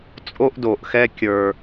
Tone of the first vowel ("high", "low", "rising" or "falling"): high